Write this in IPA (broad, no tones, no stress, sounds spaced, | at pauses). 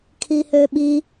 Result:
kʰ i h ø ɓ i